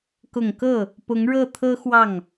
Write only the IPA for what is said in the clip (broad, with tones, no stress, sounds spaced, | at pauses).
k ʊ˨˩ ŋ k ɤ˥˩ | p ʊ˧˥ ŋ ɻ ɤ˥˩ t̪ʰ ɤ˥ x w ɑ˥˩ ŋ